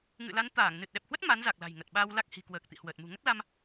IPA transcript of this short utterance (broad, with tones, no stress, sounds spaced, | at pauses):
ŋ ɨ̰˧˨ l a˨˦ n t̪ aː˧˩ ŋ n ɨ˨˩ t̚ ɗ ɛ˨˩ p̚ h w ə˦˥ t̚ m a˨˦ n z a˨˩ k̚ l a̤˨˩ j ŋ ə˨˩ t̚ ɓ aː˧ w l a˦˥ k̚ h i̤˨˩ k w əː˨˩ k̚ t̪ ḭ˧˨ h w əː˨˩ t̚ m ṳ˨˩ ŋ ə˦˥ t̚ l a˧ m